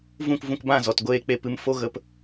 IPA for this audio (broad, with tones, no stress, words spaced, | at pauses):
vũ˦˨kvũ˧kbã˦˨ zɔ˨tɡʷeː˦k͡pe˦ pɨ˧mfo˦ɣə˧p